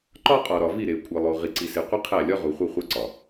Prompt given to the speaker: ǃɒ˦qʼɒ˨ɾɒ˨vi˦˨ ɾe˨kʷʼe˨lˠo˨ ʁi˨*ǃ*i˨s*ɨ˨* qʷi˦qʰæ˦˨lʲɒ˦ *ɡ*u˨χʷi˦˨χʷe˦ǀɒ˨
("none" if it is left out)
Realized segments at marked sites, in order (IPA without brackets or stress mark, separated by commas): ǀ, e˨, ʁ